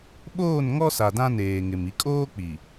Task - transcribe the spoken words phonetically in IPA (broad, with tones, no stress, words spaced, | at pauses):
ɓoː˦˨nŋɔ˦ sa˨dã˦neː˨ŋɪ˨m i˨kʼoː˦k͡pi˨